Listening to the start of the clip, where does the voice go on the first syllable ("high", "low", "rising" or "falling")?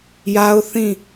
high